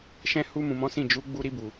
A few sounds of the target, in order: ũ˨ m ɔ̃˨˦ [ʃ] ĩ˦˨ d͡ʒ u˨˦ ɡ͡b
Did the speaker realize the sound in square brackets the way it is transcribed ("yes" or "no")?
no